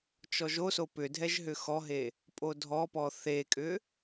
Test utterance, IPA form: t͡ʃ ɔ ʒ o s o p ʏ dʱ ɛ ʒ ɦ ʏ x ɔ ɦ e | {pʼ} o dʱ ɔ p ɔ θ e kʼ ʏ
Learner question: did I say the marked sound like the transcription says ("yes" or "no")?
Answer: yes